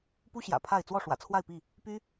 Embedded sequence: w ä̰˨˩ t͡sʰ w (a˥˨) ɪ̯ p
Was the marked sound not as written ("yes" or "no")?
no